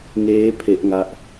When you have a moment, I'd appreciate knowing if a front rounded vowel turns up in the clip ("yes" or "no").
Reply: no